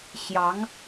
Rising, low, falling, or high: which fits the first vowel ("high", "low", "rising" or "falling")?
rising